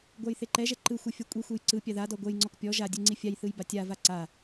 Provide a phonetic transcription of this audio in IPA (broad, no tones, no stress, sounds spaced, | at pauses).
ɡʷ a j θ e ǃ ɛ ʒ ɛ ǃ ɯ xʷ ɛ fʲ ɔ kʷʼ i xʷ e j ǀ ɯ pʲ a ð a d ɔ ɡʷ ɛ j ŋ͡ǀ ɔ k pʲ ɔ ʒ a dʲ ɯ ŋ͡ǀ i fʲ a j θ ɯ j b a tʲ a v a ǀ a